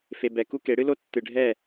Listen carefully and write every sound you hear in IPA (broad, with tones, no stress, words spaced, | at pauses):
fe˨ bɛ˨ ku˦ke˨˦ ɽɨ˦lo˦ tːɨ˨ɖʱɛ˦˨